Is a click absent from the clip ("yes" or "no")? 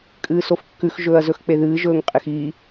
yes